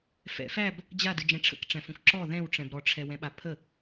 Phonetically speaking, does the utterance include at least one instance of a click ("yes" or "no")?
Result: yes